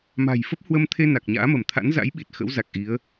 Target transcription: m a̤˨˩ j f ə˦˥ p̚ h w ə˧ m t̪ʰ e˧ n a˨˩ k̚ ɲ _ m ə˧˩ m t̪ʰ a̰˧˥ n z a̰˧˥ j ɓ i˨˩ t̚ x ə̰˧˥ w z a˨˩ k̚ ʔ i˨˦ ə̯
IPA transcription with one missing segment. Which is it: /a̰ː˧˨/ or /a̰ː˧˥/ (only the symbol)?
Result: a̰ː˧˥